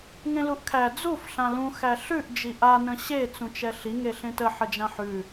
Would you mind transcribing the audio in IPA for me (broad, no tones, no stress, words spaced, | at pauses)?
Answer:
ŋẽluʔkʰæ d͡zuf ɬãlũ xæɬʉʔ d͡ʒiʔa nə̃ɕe t͡sũt͡ʃɛɬi ŋeɬẽtə ħəd͡ʒãħʉ